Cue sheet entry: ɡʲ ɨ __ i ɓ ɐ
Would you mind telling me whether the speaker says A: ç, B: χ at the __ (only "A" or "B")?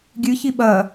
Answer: A